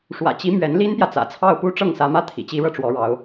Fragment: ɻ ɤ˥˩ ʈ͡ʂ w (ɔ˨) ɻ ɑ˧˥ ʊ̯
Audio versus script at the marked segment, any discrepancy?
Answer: yes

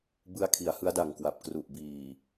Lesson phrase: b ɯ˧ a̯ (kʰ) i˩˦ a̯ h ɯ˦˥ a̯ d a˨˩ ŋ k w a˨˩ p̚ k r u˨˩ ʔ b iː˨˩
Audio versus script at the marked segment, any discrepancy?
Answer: no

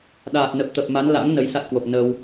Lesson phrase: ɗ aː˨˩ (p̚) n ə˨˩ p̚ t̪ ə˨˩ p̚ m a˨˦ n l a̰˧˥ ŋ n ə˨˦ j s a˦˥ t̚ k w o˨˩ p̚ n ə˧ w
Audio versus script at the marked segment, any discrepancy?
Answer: yes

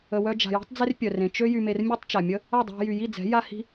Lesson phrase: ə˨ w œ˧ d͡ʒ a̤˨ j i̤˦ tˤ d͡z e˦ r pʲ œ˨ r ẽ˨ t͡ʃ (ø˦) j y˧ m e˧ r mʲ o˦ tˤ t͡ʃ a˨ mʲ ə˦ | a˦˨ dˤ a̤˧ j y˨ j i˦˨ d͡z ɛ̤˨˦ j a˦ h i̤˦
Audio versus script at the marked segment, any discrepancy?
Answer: no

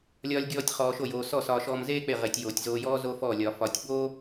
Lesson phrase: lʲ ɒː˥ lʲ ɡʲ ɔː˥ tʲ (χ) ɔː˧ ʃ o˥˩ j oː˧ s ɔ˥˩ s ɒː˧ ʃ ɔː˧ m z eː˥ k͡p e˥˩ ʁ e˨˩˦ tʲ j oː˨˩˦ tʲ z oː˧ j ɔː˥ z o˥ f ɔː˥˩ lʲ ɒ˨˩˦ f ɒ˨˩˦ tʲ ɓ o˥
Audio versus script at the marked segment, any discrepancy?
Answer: no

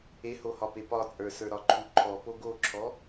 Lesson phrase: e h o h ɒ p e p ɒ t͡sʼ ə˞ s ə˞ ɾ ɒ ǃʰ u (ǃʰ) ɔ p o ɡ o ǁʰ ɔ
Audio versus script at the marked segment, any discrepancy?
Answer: no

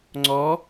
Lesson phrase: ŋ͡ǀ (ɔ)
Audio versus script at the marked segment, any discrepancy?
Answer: no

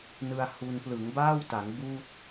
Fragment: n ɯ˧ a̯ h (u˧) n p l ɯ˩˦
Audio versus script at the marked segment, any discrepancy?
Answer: no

